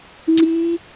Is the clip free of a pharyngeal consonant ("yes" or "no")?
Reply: yes